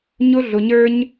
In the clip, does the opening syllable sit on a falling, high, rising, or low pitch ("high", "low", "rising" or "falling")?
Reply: high